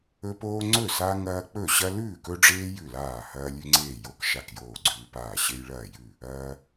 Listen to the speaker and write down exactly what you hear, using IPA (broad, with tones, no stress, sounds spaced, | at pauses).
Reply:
ɵ˦ p oː˦ ŋ͡ǀ ɵ˥˩ s a˦ ŋ ɐː˦ k͡p ɵ˥˩ ɕ ɐ˦ l ʉː˥˩ k ɵ˦ ɖ͡ʐ eː˦ j ʉ˥˩ l aː˥˩ h ɐː˦ lʲ ʉ˦ ŋ͡ǀ eː˥˩ j o˦ k ʃ a˥˩ k j oː˥˩ ɡ͡ǀ ʉː˦ p aː˥˩ ɕ e˦ j ɭ ɐː˥˩ j ʉ˥˩ | ɐː˦